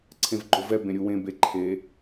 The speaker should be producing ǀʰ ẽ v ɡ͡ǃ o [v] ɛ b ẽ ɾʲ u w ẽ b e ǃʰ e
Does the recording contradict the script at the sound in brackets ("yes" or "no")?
no